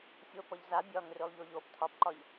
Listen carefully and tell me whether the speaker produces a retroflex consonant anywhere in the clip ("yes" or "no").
no